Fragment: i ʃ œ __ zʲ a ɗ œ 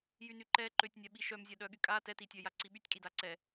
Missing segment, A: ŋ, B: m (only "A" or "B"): B